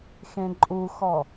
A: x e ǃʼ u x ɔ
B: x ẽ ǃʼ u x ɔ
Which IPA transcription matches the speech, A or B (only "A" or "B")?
B